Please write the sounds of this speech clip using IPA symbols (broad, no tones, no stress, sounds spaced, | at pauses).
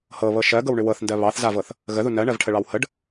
h ɤ β ɤ ʃ ɜ ɡ ɤ w ɳ ʏ w ɤ θ n d ɜ β ɑ θ z a v ɤ θ | ɣ ə ð u n ɜ ɳ ɜ v ʈʰ ə ɭ ɑ w h ə ɖ